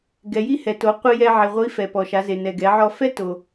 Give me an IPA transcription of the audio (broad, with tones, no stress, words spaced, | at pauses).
ɡɛ˩˧ji˥hɛ˩to˩˧ qʷi˧jɛ˧ʕi˩ʁʷi˧˥ fɛ˩pɔ˩ʃa˩˧ze˩ nɛ˩ɡɛ˩˧ʕɔ˧ fɛ˥to˩